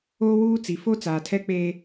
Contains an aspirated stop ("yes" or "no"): yes